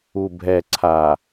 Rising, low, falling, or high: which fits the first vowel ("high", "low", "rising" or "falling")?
low